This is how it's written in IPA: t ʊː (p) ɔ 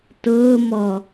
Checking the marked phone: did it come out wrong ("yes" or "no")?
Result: yes